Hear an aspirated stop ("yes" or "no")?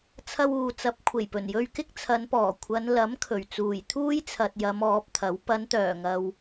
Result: yes